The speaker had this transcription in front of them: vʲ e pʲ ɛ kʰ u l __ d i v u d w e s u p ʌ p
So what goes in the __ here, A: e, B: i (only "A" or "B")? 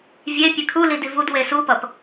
B